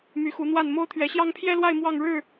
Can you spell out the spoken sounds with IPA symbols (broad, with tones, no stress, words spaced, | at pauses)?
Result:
my˨˦xu˨˦n̪wa˥˨n mo˦ʊ̯t̪ʰɥɛ˨˦ɕjɑ˦ŋ pʰjɛ˦lwa˥˨ɪ̯ mwɑ˥˨ŋɻɻ̩˥˨